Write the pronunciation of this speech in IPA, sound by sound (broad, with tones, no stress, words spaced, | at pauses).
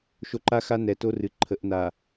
ʃo˨ǃa˦xa˦ nɛ˨to˦ rɨ˨ǃʰə˨˦ʔ na˨